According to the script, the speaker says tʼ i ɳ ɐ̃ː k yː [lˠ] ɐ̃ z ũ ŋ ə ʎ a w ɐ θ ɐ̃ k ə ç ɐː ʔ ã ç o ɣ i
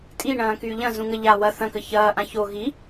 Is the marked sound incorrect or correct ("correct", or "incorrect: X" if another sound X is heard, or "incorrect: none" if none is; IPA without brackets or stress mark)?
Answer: incorrect: ʎ